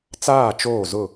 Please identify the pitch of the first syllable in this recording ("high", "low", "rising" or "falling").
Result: falling